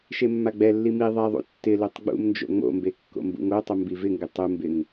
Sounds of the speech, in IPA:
ʃ e mː a ɡ͡b ɛ lː i m i ðˤ ɛ ðˤ ṵ tː ɪ l o tˤ ɡ͡b ṵ m n d͡ʒ o̰ ŋ͡m o̰ m b e kː o̰ m b ṵ ŋ o tˤ ʊ m b i v ɪ ŋ ɡ ɪ tˤ u m b ɪ ŋ

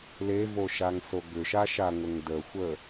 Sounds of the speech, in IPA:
l e v o ʃ a ŋ s o ɡ ʏ ʃ a ʃ a ŋʷ ə ŋ d ə xʷ ə

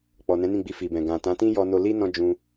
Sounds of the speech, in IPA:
k͡p ɔ˨ n ɛ̃˨˦ n ĩ˦˨ ɡ͡b i˧ f i˨ b ɛ̃˨ ɡ ã˨ t ã˨˦ t ĩ˦ j ɔ˧ n o˧ l i˦ n ɔ̃˦ d͡ʒ ũ˧

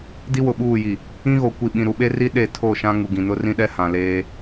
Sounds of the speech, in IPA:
d i˦ w ʊ˨ ɓ uː˦˨ j i˨ | ĩ˦ ɣ o˨ kʷ i˨ ɓ ĩ˨ ɾ u˨ ɓ e˦ r i˦ ɗ e˦˨ tʰ o˦˨ ʃ ã˦ ŋ u˨ ɡ ĩ˨ n ʊ˦ r ĩ˦ ɗ ɛ˦ h ã˨ l eː˦

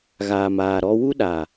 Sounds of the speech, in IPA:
ɣ aː˨ m aː˨ ɾ ɔ˦ w u˦ ɗ a˨

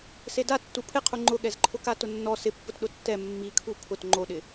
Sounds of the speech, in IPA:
s e d a tː u pʰ ɪ qʰ u ŋ͡ǃ ʊ ɠ ɛ z ǃʰ ʊ k a t ʊ nː ɔ s ɪ pː ʊ t ɗ ʊ tː ɛ mː i kʰ u pʰ ʊ t ŋ͡ǃ o ɗ ɪ

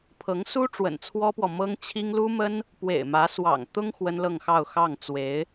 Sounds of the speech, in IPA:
pʰ ɤ˧˥ ŋ s u˥ ʈ͡ʂ w ə̰˨˩ n t͡sʰ w ɔ˥ p w ɔ˨ m ɤ˥ ŋ t͡ɕʰ i˥ ŋ l u˥ m ə˥ n | p w ḛ˨˩ ɪ̯ m ä˧˥ s w ɑ̰˨˩ ŋ t̪ ʊ˥ ŋ x w ə˥ n l ɤ˥˧ ŋ x ɑ˥˧ ʊ̯ x ɑ˥˩ ŋ t͡s w e˧˥ ɪ̯

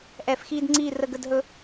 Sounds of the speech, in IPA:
ʔ ɛ˧˩˧ f x iː˦ d ŋ͡ǀ iː˦˨ r ə˦˨ ɡ ə˦˨ d ɦ ɵ˦

